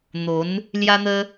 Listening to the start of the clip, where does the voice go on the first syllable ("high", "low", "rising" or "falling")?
rising